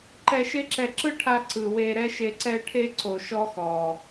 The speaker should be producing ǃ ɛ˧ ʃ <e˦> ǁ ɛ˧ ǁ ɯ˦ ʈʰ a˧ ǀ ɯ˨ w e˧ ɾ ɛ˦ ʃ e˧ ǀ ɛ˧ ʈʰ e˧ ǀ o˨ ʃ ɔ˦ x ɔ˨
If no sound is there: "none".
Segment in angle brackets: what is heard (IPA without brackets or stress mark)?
e˦